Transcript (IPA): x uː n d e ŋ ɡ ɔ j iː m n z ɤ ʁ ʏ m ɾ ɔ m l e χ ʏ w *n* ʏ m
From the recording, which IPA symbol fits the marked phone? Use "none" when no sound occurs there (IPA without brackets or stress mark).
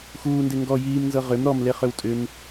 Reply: tʼ